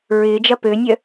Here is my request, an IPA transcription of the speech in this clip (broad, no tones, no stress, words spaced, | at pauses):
ɹɪːd͡ʒɐ pønʲœ